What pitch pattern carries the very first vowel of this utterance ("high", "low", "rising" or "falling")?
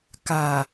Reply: low